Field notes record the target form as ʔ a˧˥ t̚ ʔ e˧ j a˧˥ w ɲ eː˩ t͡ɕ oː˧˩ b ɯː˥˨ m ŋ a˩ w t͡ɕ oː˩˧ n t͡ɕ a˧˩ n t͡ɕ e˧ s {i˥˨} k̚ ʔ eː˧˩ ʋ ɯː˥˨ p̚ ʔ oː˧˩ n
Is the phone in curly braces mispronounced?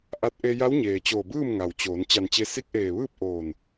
yes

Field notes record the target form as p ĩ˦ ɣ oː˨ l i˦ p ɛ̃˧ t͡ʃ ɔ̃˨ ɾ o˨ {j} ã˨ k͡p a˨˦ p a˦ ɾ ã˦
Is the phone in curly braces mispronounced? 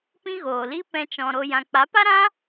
no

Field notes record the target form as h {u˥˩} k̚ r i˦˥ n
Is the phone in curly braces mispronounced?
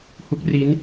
yes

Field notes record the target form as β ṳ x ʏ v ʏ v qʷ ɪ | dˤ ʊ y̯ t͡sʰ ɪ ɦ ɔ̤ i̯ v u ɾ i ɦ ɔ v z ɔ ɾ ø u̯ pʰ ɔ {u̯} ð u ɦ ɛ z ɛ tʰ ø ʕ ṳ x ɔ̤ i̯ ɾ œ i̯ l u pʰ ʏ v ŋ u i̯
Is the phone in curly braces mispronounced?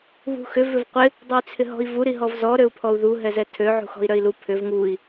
no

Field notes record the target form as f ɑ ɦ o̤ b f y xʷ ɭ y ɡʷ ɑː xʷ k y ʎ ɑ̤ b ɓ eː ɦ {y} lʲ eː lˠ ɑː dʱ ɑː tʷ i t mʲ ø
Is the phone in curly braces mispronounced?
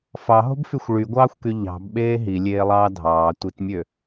yes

